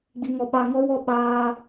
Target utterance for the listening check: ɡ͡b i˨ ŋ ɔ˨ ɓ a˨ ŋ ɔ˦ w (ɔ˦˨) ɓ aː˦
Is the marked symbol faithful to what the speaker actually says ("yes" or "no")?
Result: yes